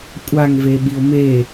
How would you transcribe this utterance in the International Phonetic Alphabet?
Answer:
kʷʼ a ŋ v e ɓ i o̯ m e

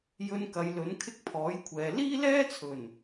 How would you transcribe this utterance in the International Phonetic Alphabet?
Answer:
j ɵ˧ n k ɐ˨˧ j l ɵ˨˥ n kʰ ɪ˥ k̚ pʰ ɔː˨˥ j kʷʰ ɛː˨ l iː˥ l ɛː˥ t͡sʰ ɵ˨˩ n

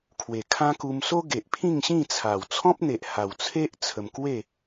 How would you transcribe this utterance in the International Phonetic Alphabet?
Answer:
kʰ w e˨˩ kʰ ã˦ k u˧ m s o˦ ɡ e˨ ʔ pʰ ĩ˥˧ ŋ ɕ ĩ˥˧ t͡sʰ a˨˩ w t͡sʰ ɔ̃˦ p̚ n̪ e˨ ʔ h a˨˩ w t͡sʰ e˦ ʔ t͡sʰ ə˧ m k w e˥˧

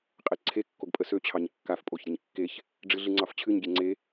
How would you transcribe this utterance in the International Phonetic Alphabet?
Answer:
qʼ e ǀʰ e kː o ɡ pʼ ə s ø t͡ɕʰ ɑ ɲ kː a f pʼ o ç ɾʲ ə ɲ kː e ç | ɖ͡ʐ ɨ ɮ ɨ ŋ͡ǀ ɑ f t͡ɕʰ ɨ ɲ ɡʲ e ŋ͡ǀ e

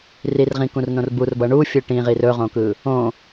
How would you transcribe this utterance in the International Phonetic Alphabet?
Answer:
r i r ʁ ĩ k ũ r n õ r b u r b ʌ ɳ u fʲ ɯ ʈ ĩ ʁ i r ɵ ʁ õ k ɯ | õ

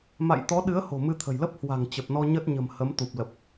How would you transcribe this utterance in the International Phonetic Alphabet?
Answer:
m a̰˧˨ j t̪ ɔ˨˦ ɗ ɨ˨˦ ə̯ h o̤˨˩ m ɨ˧ t̪ʰ ə̤˨˩ j l ə˦˥ p̚ h w a̤˨˩ ŋ t͡ɕ ə˨˩ p̚ n ɔ˧ ɲ ə˦˥ t̚ ɲ ə̤˨˩ m h ə˨˦ m t̪ u˨˩ p̚ l ə˨˩ p̚

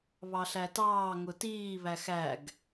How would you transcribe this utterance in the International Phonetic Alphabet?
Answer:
β ɑ ɬ æ t ɑː ŋ ʊ t iː β æ x æ ɡ

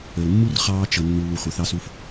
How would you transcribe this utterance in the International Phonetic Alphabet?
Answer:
ə˩ l mː u˥ r χ ɑː˦ t͡ʃ ʌ˨ nː uː˨ χʷ ə˨ θ ɑ˦ s u˦ f

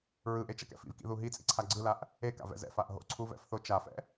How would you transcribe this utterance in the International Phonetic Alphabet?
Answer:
ɹ ɯ ʔ e t͡ʃ ʌ k ɛ̰ f ḭ v k ḭ ð u ɦ i t͡sʼ ḭ ǀʰ a ɡ͡ǀ ɯ l a ʔ | e k a̰ v ɛ̰ z ɛ̰ f a ʔ ɦ o̰ ǀʰ u v ɛ̰ f θ o t͡ʃ a f ɛ̰

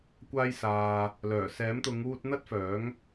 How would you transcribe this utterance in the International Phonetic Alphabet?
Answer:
kʷ aː˥ j s aː˧ | l œː˨˩ s ɛː˨˥ m t̪ ʊ˨˧ ŋ uː˧ t̚ n̪ ɐ˥ t̚ f œː˨˥ ŋ

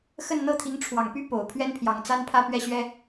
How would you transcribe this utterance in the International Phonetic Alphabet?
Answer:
x ə˥˧ n n̪ ɤ˥˩ t̪ʰ i˧˥ ŋ ʈ͡ʂʰ w ɑ˨˩ ŋ p y˥ p o˨˩ ʊ̯ pʰ ɥ ɛ˥ n pʰ j ɑ˨˩ ŋ t͡s a˥ n pʰ ä˥˧ p ɥ ɛ˥˩ ɕ ɥ ɛ˥

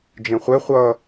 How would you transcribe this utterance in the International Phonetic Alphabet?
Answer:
d͡ʒ ẽ χʷ ɛ χʷ ʌ

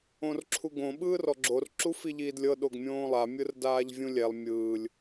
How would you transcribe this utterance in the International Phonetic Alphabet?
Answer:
õ r ǁʰ u ɡ õ ɓ ɯː r ɔ ɡ͡ǁ o r ǁ u f i ʎ iː d lʲ ɤ ɗ o ɡ mʲ õː lˠ a mʲ ɯ r d aː ʎ vʲ ũ lʲ ɛ lˠ mʲ ɯː lʲ

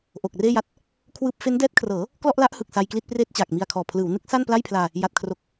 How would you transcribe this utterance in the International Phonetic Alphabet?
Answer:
ʔ o˨˩ k̚ r eː˥˩ j a˦˥ t̚ | kʰ w ɯː˥˩ p̚ f e˦˥ n d ɛː˦˥ t̚ kʰ r ɤː˩˦ | k l ɔ˥˩ ʔ l a˦˥ ʔ h ɯ˨˩ k̚ s a˧ j k l i˥˩ t̚ p r eː˥˩ t̚ t͡ɕ aː˨˩ k̚ m i˧ a̯ kʰ ɔː˨˩ pʰ l ɯː˩˦ w n ɯ˦˥ k̚ s a˥˩ n p l a˥˩ j pʰ l aː˧ | j a˨˩ t̚ kʰ r o˨˩ k̚

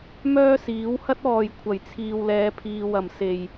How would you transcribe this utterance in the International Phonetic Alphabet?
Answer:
m œː˥ s iː˨˥ w h ɐ˥ t̚ ɔː˨ j kʷʰ ɐ˨˩ j t͡sʰ iː˨ w l ɛː˨˧ pʰ iː˨ w ɐ˨˩ m s e˨˩ j

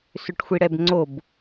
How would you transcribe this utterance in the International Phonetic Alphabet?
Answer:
s ʏ ʈ xʷ i ɽ ɛ b ŋ͡ǀ o b

